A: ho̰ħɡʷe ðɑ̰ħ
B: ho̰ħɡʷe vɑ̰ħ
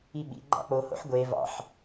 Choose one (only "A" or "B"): B